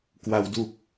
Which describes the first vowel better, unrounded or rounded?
unrounded